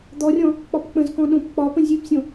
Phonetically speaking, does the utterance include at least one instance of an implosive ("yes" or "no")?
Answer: yes